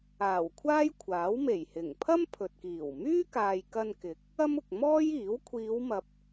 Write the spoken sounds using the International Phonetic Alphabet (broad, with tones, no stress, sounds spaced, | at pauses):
aː˨˩ w kʷʰ aː˥ j kʷʰ aː˨˥ w m e˨˩ j h ɪ˨˩ ŋ pʰ ɐ˥ m pʰ ɵ˨ t̚ k iː˨˩ w m yː˥ k aː˨ j k ɐ˧ n k ɪ˨˥ k̚ | ɐ˥ m ʊ˨ k̚ m ɔː˥ j iː˨˥ w kʷʰ iː˨˧ w m ɐ˨ p̚